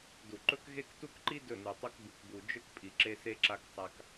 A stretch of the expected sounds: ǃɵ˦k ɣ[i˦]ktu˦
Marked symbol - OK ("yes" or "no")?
no